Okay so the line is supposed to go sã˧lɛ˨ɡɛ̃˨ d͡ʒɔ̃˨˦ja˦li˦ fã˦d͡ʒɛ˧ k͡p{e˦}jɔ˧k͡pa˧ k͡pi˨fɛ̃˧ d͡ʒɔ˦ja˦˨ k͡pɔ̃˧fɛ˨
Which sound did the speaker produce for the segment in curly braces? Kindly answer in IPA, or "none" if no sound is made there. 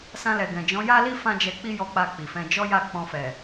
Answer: i˦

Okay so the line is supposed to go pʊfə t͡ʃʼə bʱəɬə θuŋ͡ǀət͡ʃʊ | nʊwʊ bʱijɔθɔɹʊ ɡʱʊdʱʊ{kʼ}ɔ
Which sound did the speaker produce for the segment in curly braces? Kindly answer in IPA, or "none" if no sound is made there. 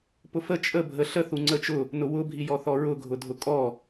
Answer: kʼ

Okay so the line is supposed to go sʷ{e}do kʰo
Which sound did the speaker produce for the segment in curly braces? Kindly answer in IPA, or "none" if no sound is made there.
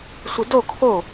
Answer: i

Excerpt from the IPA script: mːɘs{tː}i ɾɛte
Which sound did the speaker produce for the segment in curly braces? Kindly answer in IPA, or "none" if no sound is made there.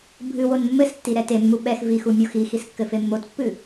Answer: tː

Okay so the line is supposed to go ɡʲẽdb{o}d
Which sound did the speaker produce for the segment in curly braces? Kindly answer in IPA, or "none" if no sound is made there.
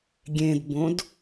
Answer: õ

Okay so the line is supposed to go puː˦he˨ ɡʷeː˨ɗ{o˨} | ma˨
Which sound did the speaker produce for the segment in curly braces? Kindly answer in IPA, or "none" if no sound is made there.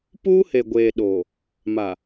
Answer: oː˨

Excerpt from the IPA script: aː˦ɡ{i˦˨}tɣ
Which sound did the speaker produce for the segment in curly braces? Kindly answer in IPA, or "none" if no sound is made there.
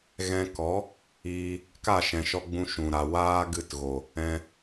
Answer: ɨ˦˨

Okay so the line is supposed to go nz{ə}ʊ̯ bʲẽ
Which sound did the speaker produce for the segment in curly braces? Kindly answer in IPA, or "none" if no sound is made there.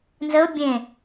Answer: ə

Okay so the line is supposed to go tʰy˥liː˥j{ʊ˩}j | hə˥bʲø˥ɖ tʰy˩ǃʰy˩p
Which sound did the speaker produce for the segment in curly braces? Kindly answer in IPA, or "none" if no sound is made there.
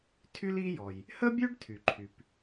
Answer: ɔ˩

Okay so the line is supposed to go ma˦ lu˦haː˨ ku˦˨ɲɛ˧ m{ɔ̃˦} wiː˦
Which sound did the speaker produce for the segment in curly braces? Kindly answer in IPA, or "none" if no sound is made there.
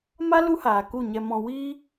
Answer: ɔ̃˧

